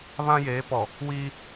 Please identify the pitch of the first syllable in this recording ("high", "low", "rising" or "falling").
high